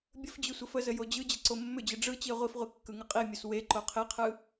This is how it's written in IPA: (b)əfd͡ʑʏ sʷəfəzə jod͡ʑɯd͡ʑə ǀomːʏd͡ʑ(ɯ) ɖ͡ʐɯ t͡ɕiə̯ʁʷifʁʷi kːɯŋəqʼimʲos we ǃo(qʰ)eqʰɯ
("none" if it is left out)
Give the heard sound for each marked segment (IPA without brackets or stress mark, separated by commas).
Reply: bʲ, ɯ, qʰ